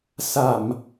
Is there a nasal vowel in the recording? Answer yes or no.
no